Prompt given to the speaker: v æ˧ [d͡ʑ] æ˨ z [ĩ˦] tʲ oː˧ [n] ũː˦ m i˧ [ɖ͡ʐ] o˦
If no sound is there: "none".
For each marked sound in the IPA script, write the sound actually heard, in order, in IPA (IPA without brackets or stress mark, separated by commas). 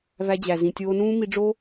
d͡ʑ, ĩ˨, n, ɖ͡ʐ